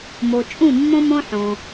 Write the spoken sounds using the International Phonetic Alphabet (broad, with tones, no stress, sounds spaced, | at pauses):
m o˧ t͡ʃʼ ũ˥˧ mː õ˥ m õ˥ ħ õ˧